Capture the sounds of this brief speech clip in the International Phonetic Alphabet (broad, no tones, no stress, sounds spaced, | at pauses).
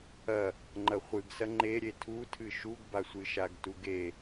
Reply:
ɐ | ŋ͡ǃ ɐ χʷ ɨ ɡ s ɐ ŋ͡ǃ e ɾʲ e tʰ u tʰ ɨ ʃ u ɡ b a sʷ ɨ ʃ a ɡ t u ɡ e